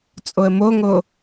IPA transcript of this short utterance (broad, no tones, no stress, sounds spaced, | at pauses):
t͡sʼ o ə̯ m o ŋ o